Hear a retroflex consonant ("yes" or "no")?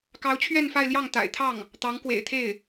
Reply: no